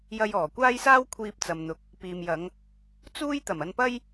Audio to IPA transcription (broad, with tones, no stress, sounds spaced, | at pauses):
j ɐ˧ j ɔː˨˩ kʷ aː˥ j s aː˥ w kʷʰ iː˧ p̚ t͡s ɐ˨ m n̪ ʊ˨ k̚ | p iː˨ m j ɐ˨˧ ŋ | t͡s uː˥ j t̪ ɐ˨˩ m ɐ˧ n p ɐ˥ j